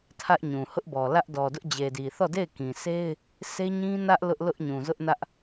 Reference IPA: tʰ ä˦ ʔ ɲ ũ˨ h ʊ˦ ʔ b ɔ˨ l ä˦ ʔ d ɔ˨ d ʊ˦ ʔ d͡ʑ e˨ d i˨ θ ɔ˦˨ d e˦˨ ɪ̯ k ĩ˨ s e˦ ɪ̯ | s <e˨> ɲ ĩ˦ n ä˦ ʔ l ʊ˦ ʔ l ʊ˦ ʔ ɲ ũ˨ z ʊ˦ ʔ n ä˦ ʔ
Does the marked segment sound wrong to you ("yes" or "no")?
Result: yes